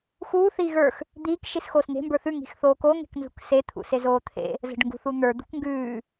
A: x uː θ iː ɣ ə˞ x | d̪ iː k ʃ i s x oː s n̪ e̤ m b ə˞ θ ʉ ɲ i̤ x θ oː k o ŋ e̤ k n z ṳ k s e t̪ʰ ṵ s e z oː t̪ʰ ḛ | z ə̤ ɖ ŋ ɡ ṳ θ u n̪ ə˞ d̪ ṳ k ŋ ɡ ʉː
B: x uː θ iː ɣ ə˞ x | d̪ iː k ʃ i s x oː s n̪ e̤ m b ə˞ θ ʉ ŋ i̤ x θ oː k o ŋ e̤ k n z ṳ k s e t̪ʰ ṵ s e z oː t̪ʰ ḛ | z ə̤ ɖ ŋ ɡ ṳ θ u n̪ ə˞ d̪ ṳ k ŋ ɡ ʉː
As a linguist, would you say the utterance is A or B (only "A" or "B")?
B